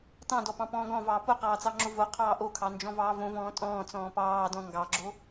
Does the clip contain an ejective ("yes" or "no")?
yes